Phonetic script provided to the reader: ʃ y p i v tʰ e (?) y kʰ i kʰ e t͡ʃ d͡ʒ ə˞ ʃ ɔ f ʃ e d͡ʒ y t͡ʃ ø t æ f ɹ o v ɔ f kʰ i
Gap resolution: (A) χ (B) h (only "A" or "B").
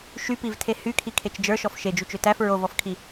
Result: B